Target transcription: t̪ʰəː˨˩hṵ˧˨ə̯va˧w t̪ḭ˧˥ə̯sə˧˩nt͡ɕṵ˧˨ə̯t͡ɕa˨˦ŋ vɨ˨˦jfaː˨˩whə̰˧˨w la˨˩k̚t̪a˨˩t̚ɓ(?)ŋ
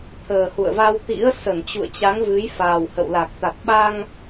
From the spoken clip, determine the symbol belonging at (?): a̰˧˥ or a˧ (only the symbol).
a˧